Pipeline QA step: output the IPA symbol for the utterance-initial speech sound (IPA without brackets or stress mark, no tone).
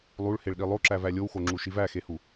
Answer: lˠ